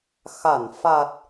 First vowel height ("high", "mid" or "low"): low